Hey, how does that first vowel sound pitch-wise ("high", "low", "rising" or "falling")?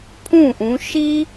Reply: falling